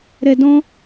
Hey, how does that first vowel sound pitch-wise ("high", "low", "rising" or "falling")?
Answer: low